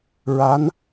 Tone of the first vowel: rising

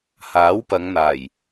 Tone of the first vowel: rising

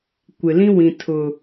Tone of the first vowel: low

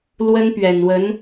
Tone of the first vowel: high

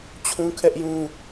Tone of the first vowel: high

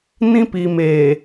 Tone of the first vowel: high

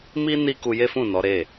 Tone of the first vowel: high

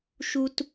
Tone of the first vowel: high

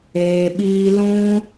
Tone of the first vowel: low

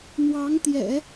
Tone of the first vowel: rising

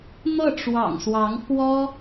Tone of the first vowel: falling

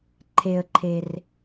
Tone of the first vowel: low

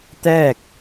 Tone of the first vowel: falling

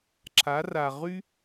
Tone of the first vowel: rising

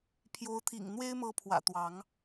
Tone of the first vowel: rising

